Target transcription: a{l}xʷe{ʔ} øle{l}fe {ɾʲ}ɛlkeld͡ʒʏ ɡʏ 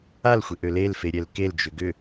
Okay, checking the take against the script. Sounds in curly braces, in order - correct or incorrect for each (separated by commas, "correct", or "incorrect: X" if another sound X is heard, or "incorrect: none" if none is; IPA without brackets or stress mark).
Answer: correct, correct, correct, correct